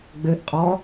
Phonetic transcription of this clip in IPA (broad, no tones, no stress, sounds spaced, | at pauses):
ɡ͡b ɘ ʔ qʼ ɔ